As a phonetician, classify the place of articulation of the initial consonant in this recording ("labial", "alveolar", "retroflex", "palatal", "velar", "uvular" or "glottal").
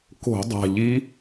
velar